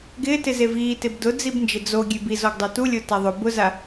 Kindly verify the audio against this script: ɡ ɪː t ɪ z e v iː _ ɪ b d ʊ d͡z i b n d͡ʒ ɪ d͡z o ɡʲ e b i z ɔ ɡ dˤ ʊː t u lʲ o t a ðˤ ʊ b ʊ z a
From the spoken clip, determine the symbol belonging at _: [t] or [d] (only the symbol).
t